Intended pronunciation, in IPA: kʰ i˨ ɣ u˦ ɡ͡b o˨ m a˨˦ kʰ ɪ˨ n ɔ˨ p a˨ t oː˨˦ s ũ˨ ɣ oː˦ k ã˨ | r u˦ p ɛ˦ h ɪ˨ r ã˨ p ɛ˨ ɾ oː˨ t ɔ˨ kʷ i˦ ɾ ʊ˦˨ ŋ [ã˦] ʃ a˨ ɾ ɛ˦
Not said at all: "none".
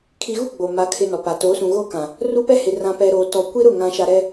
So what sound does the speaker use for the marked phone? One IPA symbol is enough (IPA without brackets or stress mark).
ã˨